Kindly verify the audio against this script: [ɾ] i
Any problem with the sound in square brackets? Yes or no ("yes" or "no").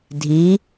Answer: yes